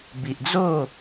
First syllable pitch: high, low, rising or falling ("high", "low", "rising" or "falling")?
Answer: low